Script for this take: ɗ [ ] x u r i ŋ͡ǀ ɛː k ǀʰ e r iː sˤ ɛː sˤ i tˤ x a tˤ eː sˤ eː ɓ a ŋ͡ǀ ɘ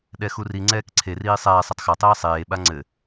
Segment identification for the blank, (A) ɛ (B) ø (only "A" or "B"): A